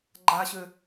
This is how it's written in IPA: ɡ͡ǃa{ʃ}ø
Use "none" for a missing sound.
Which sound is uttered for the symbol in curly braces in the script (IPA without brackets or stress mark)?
ɕ